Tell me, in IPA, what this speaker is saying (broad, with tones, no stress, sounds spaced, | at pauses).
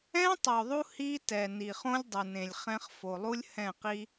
ɛ̃˦ tˤ o˨ ðˤ u˦ h i˦ t ɛ˨ n i˨ χ õ˦ lʲ dˤ ɯ˨ n ẽ˨ lʲ χ ɛ̃˦ χ f o˨ lˠ u˦ lʲ h ɛ̃˦˨ q i˦